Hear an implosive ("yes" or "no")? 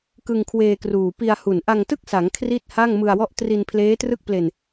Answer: no